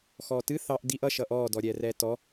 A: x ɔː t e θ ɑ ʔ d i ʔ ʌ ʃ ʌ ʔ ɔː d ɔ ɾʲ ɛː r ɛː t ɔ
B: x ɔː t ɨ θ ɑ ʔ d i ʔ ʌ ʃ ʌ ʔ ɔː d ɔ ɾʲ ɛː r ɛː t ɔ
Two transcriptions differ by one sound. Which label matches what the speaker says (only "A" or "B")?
B